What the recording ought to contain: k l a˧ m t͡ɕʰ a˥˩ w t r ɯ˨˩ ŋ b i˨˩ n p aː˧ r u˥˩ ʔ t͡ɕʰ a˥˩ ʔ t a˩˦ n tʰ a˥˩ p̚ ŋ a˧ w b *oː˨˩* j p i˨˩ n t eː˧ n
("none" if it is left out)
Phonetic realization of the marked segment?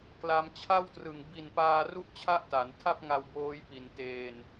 oː˦˥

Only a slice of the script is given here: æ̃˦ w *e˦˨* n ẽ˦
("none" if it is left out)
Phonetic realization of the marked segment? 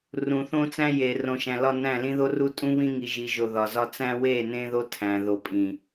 e˦˨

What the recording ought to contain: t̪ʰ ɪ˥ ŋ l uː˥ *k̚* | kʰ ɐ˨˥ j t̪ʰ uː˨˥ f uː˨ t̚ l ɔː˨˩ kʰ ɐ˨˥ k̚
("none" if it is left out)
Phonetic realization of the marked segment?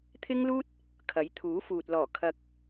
t̚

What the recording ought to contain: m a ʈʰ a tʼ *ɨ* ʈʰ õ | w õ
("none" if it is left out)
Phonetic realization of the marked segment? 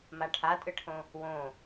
ɨ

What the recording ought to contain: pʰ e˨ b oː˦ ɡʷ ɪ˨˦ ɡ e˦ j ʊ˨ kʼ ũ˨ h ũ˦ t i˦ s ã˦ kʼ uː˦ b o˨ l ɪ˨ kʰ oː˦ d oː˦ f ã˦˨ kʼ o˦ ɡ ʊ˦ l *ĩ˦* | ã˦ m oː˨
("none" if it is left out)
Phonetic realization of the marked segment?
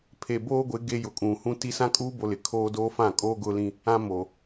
ĩ˦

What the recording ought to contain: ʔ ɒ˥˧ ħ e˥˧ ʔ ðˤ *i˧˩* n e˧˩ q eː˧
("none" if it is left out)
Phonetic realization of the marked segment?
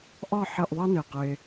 i˥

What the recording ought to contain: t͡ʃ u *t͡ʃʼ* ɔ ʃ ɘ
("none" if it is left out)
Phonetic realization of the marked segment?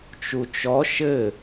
t͡ʃ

